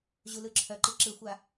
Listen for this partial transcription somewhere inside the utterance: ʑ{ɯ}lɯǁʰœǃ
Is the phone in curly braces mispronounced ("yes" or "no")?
yes